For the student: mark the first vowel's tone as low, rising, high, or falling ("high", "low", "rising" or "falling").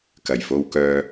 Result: low